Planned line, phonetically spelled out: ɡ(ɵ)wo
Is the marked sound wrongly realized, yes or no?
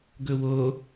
no